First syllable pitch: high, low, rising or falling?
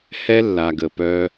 high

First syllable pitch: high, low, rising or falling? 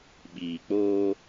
low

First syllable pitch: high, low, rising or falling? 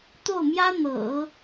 falling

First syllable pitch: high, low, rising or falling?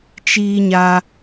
high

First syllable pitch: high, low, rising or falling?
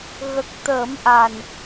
low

